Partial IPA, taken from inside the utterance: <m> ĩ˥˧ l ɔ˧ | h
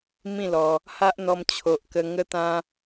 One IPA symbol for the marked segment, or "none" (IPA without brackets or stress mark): m